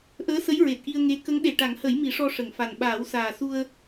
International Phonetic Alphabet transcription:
ʔəː˧˥sə˧˥j ɹe˨˩t̚ʔi˧ə̯ŋe˧˥ kə˧˥ŋɗe˨˩ ʈa˨˩˦ŋhə˨˩˦j mi˨˩˦ʂɔ˧ʂə˨˩˨ŋfa˨˩n ɓaː˨˩˦wsaː˨˩su˧ə̯

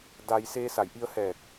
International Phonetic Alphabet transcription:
da˧j seː˧sa˧˩jʔi˧ə̯hɛː˧˩k̚

